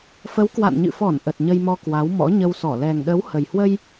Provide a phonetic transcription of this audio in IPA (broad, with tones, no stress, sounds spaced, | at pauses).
f ə˨˦ w k w a̰˧˨ n ɲ ɨ̰˧˨ f ɔ˧˩ n ʔ ə˨˩ t̚ ɲ ə˧ j m ɔ˧ k w a˨˦ w m ɔ̰˧˥ ɲ ə˧ w s ɔ˧˩ l ɛ˨˩ ŋ ɗ ə˨˦ w h ə˨˩ j h w ə˧ j